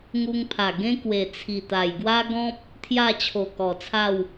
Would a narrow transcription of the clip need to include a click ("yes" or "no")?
no